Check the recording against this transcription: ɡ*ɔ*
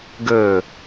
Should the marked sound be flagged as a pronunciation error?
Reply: yes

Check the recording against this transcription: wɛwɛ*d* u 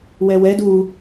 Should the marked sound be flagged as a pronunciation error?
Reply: no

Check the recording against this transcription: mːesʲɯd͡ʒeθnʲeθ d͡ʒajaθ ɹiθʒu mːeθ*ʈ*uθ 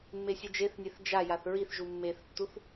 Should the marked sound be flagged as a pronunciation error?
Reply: yes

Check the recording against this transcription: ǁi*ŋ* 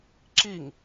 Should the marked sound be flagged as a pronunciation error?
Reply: no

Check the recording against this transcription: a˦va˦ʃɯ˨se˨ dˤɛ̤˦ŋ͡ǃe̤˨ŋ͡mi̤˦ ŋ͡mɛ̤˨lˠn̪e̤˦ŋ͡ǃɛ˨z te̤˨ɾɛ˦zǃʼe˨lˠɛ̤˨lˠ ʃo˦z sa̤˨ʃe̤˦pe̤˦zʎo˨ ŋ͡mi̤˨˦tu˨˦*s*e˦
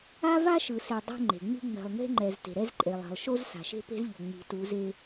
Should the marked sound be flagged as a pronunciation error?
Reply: yes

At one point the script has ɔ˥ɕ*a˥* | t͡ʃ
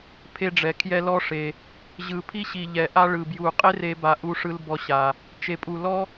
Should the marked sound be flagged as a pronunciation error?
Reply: yes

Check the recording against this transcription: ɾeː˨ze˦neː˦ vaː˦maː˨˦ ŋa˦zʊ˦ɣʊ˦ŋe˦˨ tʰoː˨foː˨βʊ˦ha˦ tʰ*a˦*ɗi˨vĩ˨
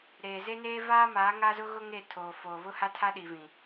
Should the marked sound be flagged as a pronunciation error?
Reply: no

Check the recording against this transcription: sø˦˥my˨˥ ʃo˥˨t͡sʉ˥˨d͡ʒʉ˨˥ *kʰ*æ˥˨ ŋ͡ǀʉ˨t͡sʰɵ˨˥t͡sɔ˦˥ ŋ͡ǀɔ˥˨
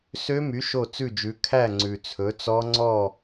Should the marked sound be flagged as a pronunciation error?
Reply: no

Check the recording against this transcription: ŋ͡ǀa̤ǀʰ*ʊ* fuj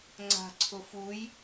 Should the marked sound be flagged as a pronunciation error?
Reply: no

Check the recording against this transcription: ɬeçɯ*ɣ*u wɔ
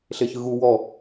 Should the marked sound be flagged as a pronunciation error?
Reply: no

